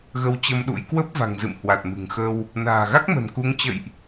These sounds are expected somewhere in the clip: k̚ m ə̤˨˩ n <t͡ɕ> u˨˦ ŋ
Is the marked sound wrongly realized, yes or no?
yes